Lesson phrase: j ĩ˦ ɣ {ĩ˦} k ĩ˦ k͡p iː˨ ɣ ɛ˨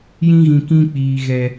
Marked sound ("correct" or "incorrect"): incorrect